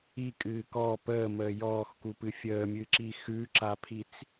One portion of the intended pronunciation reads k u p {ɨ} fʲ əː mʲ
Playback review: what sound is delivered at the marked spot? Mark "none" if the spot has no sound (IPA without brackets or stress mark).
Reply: ɨ